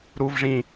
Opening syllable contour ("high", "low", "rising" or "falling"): low